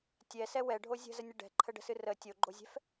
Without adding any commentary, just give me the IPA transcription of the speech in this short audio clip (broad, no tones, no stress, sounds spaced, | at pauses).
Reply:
tʲ ɛ s ɛ w ɛ ɖʱ o zʲ ə̤ z ə nʲ ə ɖ ɛ̤ ǃʰ ə ɖ ə̤ s ɨ r ə tʲ o ɡ͡ǃ o zʲ ɛ̤ f